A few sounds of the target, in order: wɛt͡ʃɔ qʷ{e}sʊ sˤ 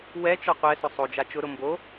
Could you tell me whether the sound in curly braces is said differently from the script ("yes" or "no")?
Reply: yes